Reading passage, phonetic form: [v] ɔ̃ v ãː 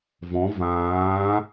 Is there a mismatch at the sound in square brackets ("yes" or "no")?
no